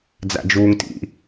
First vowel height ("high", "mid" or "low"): low